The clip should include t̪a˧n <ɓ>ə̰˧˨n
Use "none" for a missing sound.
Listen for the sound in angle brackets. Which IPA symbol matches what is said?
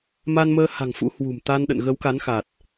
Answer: ɗ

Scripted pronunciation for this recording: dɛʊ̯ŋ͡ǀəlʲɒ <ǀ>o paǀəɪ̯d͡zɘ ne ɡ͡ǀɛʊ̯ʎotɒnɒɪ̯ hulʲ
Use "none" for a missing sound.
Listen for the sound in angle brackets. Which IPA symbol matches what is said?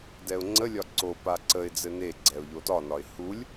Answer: ǀ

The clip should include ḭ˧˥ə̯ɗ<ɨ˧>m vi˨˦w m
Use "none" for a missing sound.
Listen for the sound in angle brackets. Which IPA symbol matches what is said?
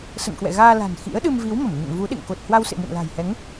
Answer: ɨ˧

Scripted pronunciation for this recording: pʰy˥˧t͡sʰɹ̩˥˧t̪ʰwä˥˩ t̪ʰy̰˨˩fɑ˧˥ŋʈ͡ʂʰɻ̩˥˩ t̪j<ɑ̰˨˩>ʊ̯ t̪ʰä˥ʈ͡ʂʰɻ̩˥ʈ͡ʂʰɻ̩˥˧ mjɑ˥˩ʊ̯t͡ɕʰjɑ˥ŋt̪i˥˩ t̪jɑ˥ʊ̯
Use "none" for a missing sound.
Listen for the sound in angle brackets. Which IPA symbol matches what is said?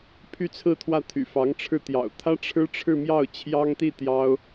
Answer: ɑ̰˨˩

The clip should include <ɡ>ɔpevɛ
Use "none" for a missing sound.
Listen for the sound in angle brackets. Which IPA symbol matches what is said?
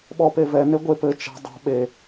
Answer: ɓ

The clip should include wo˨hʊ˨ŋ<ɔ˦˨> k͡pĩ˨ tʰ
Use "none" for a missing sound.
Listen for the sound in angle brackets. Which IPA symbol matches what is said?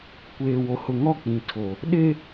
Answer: ɔ˦˨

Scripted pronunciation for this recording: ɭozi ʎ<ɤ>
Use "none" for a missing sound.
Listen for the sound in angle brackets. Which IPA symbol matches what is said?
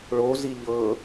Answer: ɤ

